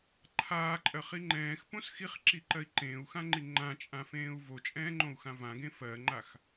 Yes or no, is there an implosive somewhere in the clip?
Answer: no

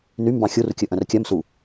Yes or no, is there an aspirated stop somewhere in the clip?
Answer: no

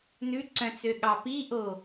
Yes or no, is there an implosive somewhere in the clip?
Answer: yes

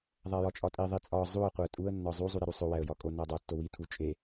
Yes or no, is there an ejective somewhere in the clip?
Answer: yes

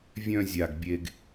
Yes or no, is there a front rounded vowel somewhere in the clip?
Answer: yes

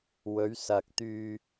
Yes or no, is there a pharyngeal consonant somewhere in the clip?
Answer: no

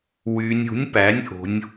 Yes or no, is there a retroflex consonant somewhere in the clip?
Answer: no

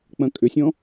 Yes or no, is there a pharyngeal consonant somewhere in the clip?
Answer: no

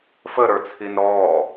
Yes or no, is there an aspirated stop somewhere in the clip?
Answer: yes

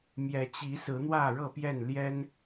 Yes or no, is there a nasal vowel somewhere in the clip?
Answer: no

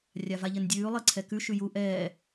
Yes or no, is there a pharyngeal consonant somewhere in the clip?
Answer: no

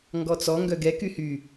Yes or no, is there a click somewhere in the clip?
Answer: no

